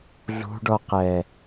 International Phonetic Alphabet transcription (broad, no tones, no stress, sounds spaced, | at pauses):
ɮ ṳ ɖ ɔ q ɛ